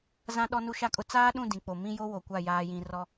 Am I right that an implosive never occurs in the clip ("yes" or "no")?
no